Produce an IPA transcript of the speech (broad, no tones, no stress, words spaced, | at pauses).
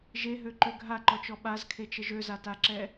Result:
ʒeɦøǃø ɡʱaǃɔt͡ʃɔ ɓazkʰet͡ʃəʒ øzataǁɛ